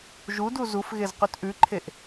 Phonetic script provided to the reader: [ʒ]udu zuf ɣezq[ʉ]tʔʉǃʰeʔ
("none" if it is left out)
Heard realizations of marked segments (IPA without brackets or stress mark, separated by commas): ʒ, ʉ